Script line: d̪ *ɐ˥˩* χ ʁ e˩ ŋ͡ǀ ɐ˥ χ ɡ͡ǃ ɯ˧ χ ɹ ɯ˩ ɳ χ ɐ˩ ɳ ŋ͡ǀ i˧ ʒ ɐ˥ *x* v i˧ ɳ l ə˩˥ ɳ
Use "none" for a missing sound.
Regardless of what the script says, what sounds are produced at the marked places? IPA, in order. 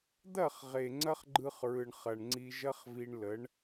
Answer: ɐ˥˩, χ

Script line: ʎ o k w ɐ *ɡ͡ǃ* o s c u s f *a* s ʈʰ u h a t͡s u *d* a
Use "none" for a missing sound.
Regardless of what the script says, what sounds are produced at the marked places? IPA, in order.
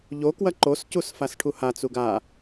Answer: ǃ, a, ɡ

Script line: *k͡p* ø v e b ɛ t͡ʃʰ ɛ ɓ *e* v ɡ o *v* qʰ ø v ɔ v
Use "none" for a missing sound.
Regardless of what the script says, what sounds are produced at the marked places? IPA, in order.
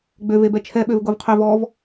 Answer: ɡ͡b, ø, v

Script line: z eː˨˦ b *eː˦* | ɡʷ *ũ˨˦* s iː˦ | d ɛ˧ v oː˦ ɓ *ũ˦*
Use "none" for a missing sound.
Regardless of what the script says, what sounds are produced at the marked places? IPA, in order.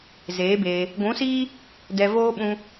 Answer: eː˧, ũ˨˦, ũ˦

